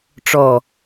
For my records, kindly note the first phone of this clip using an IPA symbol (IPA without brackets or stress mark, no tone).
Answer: ʈ͡ʂ